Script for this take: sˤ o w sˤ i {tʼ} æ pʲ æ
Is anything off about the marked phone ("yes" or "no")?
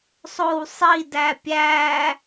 yes